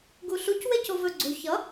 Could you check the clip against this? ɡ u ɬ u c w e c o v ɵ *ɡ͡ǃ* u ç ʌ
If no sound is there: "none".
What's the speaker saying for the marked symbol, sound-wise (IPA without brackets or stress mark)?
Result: ɡ͡ǀ